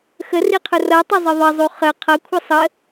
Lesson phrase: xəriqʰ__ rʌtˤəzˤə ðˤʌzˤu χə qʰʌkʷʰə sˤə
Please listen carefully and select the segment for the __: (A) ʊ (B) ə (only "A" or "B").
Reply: A